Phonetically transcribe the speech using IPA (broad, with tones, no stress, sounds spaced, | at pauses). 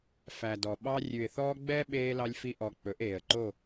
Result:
f æ˨ d ɔ˨ ɓ ɑ˧ rʲ ʉ˨ ɪ̯ θ ɔː˧ ɡ͡b ɛ˦ ɓ eː˧ l ɑ˧ lʲ f i˧ ʔ ɔ˨ k͡p ɵ˨˦ ʔ eː˨ ə̯ ǃ o˦˨